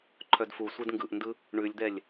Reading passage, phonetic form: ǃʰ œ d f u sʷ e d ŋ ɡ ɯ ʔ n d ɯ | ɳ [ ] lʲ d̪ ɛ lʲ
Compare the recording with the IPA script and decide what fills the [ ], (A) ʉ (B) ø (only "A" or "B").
A